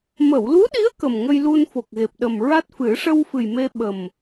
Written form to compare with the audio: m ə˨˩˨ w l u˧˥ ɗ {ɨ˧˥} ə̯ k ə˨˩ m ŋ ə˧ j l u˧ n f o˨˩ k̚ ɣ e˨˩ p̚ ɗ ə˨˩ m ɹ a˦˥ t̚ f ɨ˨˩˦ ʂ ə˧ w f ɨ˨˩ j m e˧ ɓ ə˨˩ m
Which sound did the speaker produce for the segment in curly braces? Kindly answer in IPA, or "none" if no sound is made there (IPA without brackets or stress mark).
i˧˥